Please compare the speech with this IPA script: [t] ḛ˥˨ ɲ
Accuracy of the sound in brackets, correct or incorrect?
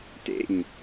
correct